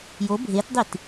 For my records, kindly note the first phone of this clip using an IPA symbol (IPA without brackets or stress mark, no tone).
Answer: j